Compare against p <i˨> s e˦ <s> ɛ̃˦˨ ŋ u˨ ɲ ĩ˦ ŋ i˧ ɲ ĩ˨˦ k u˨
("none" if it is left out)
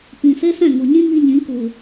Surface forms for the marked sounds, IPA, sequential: ĩ˨, s

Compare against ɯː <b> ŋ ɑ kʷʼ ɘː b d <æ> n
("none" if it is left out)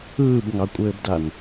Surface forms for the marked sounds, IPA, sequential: b, a

